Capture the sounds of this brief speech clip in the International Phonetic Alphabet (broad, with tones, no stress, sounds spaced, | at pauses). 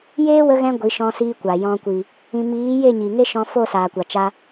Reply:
j eː˦ w ə˧ ɣ ɛ̃˧ ɡʷ i˨˦ ʃ ɔ̃˧ s iː˧ kʷ a˨ j ɔ̃˧ kʷ i˨ | ĩ˧ m iː˨˦ j e˦˨ ɲ i˨ ŋ e˦ ʃ ɔ̃˧ f o˦˨ s aː˨ kʷ a˨ t͡ʃ a˧